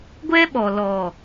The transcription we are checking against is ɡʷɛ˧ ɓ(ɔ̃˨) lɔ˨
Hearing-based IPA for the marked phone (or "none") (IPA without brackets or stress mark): ɔ˨